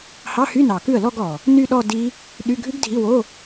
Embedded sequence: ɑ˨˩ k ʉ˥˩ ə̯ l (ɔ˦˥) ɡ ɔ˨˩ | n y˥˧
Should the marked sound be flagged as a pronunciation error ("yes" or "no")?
yes